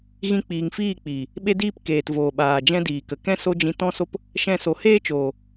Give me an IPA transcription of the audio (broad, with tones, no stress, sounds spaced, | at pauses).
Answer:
ɣ ĩ˧ k͡p iː˨ ŋ f iː˦˨ k͡p iː˨ | ɓ e˦ d iː˦ p k eː˨ t v oː˨ ɓ aː˨ d͡ʒ ɛ̃˦ d iː˨ k ə˨ k ɛ̃˦ s o˦ d͡ʒ ĩ˧ t ɔ̃˦ s o˦ p | ʃ ɛ̃˧ s o˨ h eː˦ t͡ʃ oː˨